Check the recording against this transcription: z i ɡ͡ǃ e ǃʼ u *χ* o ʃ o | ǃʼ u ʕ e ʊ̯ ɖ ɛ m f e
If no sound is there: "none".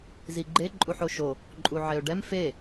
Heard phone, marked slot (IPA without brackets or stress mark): ħ